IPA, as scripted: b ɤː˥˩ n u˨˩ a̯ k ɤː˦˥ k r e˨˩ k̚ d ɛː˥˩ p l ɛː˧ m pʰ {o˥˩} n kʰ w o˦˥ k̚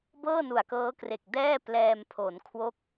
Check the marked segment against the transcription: incorrect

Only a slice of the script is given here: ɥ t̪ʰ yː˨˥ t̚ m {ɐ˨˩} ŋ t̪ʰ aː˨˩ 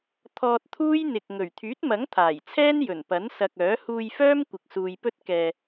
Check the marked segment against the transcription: incorrect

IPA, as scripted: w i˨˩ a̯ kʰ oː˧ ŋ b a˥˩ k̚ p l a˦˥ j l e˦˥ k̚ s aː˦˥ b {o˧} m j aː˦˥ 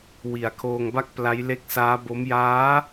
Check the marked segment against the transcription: incorrect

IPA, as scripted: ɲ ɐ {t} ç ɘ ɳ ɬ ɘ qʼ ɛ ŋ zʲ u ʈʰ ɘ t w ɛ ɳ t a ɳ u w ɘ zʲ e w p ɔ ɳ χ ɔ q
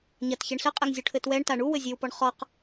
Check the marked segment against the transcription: correct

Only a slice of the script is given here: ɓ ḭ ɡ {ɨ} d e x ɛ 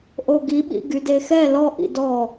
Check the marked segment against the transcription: incorrect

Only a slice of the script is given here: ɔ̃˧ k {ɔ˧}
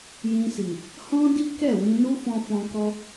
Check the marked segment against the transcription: correct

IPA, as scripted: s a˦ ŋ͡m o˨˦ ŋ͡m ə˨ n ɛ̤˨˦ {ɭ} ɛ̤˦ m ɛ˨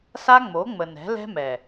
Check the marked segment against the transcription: incorrect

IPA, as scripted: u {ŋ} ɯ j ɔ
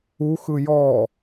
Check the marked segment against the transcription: incorrect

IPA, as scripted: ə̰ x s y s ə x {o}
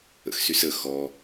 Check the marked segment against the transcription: incorrect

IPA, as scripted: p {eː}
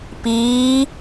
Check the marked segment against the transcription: incorrect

